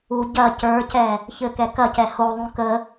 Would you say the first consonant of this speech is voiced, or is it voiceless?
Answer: voiced